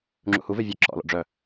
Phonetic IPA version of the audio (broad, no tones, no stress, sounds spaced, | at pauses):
ŋ͡ǁ ṵ h u v e vʲ ɛ ǁ ɔ̰ l ɔ̰ ɖ͡ʐ œ